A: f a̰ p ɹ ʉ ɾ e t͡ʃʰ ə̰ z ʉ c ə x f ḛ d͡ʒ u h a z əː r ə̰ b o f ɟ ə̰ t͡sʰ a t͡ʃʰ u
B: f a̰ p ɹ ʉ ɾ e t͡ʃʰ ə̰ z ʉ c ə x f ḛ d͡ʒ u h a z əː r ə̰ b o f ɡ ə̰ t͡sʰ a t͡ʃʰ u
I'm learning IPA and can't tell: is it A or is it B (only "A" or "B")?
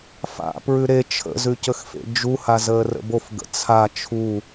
B